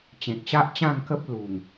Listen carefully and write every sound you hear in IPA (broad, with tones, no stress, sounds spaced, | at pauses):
t͡ɕ ẽ˨ k̚ ɕ a˦ ʔ t͡ɕ ã˥˧ ŋ k ə˦ p̚ l u˨˩ ŋ